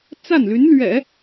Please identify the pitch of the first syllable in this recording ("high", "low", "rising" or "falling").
falling